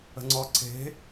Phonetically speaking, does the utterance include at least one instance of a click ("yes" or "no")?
yes